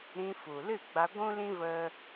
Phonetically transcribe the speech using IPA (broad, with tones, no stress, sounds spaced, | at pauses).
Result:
ɾ ĩ˧ f u˨ l ɨ˦˨ ɡ͡b a˧ ɡʷ ũ˦ l ĩ˦ v ə˦